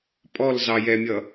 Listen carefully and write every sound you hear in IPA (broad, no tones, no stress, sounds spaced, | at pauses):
pʼ ɔ l z ɑ j ɛ mʲ ʌ